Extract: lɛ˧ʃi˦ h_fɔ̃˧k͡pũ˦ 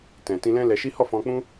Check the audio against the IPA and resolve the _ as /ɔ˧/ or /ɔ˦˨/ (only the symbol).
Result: ɔ˦˨